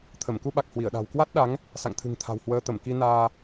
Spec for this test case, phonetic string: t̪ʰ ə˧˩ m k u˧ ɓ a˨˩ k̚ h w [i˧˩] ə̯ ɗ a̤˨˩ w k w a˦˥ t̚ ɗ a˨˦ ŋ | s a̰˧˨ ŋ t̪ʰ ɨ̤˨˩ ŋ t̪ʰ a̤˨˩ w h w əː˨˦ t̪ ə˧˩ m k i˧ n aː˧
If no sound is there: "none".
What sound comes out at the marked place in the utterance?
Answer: i˧˩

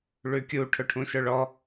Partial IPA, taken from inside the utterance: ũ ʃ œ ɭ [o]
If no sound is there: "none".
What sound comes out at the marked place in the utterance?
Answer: ɔ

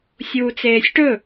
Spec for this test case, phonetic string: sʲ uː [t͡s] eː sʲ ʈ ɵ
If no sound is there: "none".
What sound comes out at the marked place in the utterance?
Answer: t͡s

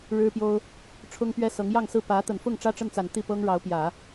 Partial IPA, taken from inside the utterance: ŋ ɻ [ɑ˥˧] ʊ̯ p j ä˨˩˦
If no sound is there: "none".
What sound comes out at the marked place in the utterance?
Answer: ɑ˧˥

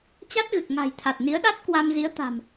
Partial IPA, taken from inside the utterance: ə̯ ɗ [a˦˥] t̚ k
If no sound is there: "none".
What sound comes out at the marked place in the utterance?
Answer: a˦˥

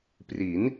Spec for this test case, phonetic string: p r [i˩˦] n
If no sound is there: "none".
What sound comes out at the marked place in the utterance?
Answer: i˩˦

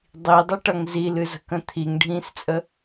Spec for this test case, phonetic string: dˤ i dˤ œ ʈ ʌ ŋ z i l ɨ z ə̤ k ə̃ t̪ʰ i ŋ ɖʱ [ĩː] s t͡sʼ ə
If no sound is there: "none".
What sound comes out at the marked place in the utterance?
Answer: ĩː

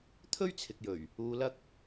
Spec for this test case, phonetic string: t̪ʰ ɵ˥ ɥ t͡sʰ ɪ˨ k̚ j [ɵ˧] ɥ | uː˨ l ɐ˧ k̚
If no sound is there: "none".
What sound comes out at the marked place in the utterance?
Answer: ɵ˨˩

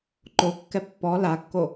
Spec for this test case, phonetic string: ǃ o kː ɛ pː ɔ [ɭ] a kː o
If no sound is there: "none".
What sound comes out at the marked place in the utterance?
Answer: l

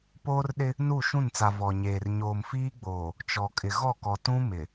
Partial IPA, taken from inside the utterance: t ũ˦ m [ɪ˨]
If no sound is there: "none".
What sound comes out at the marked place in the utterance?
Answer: ɪ˨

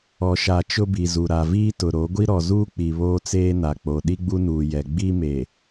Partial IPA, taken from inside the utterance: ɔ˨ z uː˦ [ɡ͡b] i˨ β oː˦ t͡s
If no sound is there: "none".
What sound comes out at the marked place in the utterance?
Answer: k͡p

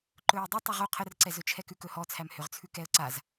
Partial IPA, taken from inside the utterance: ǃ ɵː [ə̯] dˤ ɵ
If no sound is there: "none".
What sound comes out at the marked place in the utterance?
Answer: ə̯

